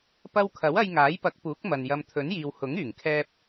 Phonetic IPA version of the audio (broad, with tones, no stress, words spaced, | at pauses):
pɐ˧wkʰɐ˨˥w ɐ˧jŋaː˨˥jpɐ˨˥k̚ puː˨˥k̚mɐ˨n jɐ˨mt̪ʰɵ˨˥njiː˨w hʊ˨˥ŋyː˨˩ŋkʰɛː˧p̚